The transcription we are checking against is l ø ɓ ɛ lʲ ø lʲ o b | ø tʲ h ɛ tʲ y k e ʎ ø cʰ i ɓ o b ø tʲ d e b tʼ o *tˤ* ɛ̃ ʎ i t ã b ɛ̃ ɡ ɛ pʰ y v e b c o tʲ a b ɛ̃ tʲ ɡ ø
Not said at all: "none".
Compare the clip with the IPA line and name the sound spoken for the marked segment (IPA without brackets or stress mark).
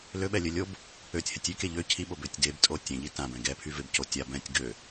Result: tʲ